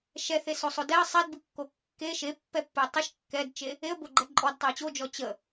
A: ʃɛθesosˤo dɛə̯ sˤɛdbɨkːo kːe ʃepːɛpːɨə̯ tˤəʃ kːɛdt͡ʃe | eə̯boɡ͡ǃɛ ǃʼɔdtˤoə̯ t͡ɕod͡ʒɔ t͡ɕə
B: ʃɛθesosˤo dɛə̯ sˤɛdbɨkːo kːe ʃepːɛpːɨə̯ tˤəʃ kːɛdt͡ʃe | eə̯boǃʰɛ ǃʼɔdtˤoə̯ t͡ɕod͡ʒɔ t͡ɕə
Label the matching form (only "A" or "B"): A